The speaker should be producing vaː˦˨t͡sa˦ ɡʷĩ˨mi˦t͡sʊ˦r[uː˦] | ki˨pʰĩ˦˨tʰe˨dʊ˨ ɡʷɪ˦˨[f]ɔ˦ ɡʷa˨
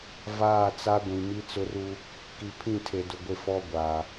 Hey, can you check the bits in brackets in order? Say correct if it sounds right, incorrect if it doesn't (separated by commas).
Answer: incorrect, correct